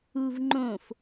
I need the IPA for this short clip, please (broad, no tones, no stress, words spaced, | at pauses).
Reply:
uvŋ͡ǃõf